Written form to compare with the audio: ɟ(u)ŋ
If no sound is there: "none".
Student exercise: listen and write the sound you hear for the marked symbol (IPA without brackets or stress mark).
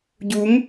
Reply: u